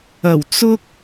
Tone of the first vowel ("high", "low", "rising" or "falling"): low